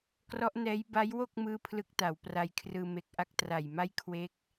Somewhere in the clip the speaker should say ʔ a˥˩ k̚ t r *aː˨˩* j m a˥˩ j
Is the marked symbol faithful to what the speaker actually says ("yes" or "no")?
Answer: no